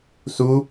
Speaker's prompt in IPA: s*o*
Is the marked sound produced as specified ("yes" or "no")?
no